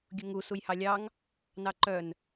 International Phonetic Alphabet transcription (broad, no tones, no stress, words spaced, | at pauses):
ɡʲuŋu sujhɑlʲɑŋ | nɑǃœn